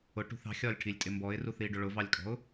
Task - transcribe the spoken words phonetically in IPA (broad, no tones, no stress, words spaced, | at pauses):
ʊʈṳθ ɑ̤xʲɒlʲʈʰilʲtʼɪ mbɔɪ̯ruθiɖʊ ɭʊvɑlʲkʼɔ̤ʊ̯